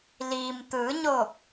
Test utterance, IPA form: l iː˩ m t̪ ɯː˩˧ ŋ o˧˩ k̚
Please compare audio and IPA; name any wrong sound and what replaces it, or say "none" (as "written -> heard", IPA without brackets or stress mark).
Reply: ŋ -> ɲ